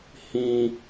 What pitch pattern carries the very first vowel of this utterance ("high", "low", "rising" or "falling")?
high